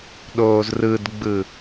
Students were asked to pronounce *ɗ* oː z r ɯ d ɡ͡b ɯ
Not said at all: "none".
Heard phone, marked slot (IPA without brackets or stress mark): ɗ